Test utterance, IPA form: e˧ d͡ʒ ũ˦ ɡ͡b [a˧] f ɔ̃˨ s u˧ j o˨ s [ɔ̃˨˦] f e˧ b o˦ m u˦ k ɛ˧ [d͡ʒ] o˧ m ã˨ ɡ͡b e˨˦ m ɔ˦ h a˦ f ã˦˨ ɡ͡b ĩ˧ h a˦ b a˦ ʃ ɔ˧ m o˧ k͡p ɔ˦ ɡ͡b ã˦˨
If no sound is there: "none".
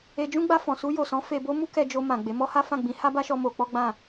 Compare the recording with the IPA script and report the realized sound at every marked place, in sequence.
a˧, ɔ̃˨˦, d͡ʒ

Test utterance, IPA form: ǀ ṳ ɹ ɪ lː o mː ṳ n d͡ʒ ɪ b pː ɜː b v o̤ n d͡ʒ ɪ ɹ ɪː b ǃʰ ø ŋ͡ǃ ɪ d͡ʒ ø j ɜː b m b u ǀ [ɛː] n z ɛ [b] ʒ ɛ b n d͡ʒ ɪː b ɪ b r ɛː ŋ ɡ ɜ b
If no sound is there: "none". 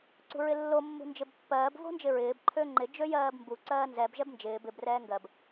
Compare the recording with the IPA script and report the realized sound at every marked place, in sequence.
ɜː, b

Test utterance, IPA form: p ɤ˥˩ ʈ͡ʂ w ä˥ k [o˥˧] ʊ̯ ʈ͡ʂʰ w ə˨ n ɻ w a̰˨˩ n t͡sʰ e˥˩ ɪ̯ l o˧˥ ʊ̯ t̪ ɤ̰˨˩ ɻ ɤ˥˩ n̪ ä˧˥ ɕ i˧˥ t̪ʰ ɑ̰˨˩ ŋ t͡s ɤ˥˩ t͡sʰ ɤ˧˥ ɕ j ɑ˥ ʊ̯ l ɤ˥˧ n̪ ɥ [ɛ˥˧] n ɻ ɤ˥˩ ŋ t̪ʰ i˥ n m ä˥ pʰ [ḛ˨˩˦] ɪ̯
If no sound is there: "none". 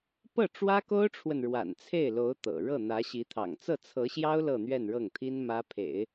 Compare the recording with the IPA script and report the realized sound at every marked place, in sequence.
o˥, ɛ˥˧, ḛ˨˩˦

